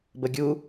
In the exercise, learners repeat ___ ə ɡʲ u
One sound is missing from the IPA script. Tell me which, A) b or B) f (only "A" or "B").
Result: A